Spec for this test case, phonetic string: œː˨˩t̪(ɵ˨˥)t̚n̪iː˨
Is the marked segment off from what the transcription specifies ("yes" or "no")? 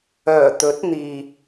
no